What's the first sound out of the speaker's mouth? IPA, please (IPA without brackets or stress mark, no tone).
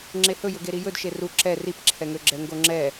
ŋ͡ǁ